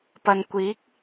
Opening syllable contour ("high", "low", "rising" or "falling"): low